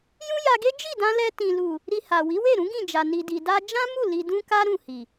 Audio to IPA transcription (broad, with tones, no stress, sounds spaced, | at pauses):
j ũ˦ j a˧ ɡ e˦ d͡ʒ i˦˨ d ã˧ l ɛ˧ t ĩ˨ l u˨ | ɾ i˧ h a˨ w i˨˦ w e˦˨ ɾ ũ˨˦ ɡ ĩ˦˨ d͡ʒ a˨ n i˨ d i˨ d a˧ d͡ʒ ã˦ m u˦˨ l i˧ d ũ˦ k a˦ ɾ ũ˦˨ h i˨